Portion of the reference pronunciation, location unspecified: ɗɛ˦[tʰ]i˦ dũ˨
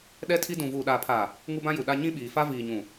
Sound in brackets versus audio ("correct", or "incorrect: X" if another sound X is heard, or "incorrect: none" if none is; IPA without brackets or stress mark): correct